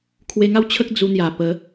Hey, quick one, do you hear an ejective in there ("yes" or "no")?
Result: no